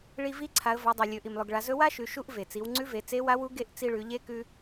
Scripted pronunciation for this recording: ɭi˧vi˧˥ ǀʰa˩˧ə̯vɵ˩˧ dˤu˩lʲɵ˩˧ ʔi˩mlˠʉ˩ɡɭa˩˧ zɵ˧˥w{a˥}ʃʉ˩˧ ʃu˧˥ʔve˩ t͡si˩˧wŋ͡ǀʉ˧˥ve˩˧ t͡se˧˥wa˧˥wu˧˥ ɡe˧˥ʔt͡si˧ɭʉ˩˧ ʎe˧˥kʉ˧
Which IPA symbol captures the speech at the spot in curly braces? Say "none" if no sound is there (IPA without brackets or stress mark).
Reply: a˥